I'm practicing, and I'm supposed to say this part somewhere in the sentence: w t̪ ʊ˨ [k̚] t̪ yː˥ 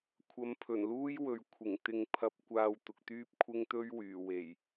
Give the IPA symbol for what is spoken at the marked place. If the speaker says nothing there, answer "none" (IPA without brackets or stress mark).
k̚